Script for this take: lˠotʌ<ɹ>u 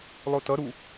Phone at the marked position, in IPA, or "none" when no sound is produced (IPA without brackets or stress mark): ɾ